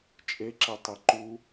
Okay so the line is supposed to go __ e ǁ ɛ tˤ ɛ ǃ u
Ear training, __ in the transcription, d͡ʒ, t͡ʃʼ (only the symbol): t͡ʃʼ